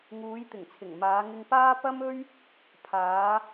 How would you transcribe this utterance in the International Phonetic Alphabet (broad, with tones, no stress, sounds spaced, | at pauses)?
ŋ uː˨˧ j t̪ ɪ˨˩ ŋ t͡sʰ ɪ˨˩ ŋ m aː˨˧ ŋ ɪ˧ ŋ p aː˥ p ɐ˥ m ɵ˥ ɥ | pʰ aː˨˧